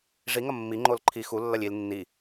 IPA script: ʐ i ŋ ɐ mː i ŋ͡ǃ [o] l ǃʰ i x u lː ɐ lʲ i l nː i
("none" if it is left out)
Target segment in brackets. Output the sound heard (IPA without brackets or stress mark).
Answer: o